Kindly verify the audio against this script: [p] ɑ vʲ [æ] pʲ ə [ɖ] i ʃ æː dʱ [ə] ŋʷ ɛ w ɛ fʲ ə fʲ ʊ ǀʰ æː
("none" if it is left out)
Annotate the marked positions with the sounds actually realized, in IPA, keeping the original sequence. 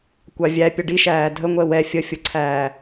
kʷ, æ, ɖ, ə

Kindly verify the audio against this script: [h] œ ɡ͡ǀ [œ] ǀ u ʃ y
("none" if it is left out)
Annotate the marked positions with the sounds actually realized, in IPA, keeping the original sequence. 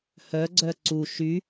h, œ

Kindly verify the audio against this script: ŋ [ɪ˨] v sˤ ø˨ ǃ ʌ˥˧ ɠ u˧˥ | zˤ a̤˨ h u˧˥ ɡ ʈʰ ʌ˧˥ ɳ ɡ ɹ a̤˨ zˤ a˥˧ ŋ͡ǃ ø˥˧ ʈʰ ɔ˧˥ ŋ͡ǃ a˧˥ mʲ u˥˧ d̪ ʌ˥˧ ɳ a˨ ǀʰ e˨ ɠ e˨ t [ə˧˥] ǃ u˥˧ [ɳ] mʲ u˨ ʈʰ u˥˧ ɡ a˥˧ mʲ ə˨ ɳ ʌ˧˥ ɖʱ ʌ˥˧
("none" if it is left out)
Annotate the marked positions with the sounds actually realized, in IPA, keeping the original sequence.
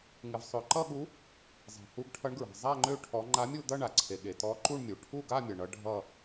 ɪ˨, ɔ˧˥, ɳ

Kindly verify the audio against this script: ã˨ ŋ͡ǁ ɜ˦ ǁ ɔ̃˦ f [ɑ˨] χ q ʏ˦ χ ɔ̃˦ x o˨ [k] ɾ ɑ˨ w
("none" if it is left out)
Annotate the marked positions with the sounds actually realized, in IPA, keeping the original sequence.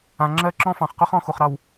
ɑ̃˨, χ

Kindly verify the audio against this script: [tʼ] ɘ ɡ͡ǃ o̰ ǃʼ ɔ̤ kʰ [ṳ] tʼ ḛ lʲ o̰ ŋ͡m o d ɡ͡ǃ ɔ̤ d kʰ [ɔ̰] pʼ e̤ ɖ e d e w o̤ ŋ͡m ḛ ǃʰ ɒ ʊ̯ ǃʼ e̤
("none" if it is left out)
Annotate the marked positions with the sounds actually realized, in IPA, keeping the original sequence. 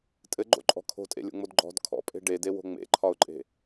tʼ, o̤, ɔ̰

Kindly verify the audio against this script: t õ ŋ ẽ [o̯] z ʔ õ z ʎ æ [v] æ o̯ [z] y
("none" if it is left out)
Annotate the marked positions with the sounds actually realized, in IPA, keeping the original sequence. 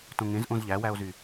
none, w, z

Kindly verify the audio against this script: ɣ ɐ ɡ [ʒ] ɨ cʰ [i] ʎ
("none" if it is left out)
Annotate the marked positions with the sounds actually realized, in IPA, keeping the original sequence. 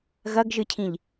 ʒ, ĩ

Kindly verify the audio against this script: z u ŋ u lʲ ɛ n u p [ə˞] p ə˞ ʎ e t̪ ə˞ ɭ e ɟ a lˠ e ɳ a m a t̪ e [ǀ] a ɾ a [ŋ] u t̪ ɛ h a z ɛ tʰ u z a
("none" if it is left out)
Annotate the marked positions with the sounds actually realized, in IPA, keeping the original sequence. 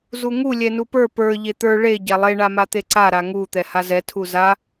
ə˞, ǀ, ŋ

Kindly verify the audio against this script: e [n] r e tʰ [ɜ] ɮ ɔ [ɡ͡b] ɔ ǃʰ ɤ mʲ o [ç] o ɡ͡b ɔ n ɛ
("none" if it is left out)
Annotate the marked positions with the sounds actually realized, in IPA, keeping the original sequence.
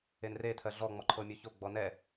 n, ɜ, ŋ͡m, ç

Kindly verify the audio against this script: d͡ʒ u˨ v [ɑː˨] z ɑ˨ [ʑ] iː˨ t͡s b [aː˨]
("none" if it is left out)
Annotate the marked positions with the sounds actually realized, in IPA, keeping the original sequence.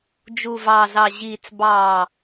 ɑː˨, ʑ, ɑː˨

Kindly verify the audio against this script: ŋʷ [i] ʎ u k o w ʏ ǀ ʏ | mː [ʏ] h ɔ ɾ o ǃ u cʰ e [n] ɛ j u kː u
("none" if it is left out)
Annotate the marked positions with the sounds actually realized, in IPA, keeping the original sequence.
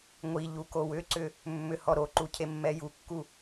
i, ʏ, mː

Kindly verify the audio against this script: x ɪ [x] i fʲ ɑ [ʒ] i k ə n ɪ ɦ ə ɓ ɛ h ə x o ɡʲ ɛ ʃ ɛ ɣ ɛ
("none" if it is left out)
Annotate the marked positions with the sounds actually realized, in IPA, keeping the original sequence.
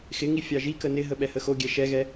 ŋ, ʒ

